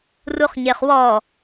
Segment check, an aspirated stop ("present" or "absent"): absent